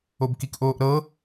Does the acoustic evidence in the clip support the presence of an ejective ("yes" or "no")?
no